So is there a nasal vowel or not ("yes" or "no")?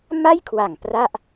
no